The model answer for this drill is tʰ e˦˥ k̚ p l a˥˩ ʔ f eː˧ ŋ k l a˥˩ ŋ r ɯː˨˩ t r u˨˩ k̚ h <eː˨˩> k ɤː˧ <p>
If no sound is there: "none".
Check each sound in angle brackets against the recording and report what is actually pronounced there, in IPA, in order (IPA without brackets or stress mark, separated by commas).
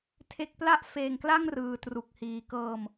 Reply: iː˨˩, m